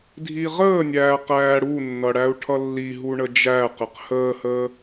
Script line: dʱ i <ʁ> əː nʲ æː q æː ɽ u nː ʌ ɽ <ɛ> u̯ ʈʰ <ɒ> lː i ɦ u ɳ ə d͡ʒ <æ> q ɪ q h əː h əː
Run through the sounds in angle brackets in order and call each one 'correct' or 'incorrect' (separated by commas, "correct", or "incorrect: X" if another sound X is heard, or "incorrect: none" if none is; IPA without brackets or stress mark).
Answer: correct, incorrect: æ, incorrect: ʌ, correct